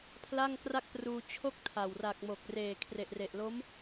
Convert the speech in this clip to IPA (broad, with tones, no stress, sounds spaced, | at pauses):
pʰ l a˥˩ ŋ k r a˥˩ k̚ p r uː˧ t͡ɕʰ o˥˩ k̚ tʰ a˨˩ w r a˨˩ k̚ m o˨˩ k̚ r eː˨˩ kʰ r e˨˩ ʔ r e˨˩ ʔ l o˦˥ m